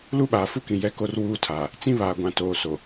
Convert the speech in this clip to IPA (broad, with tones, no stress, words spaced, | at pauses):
lu˦ɓaː˨fu˦kĩ˨ jɛ˦ko˦r wuː˦tʰaː˨ | t͡sĩ˦βaː˨ɡʷã˨ toː˨ so˨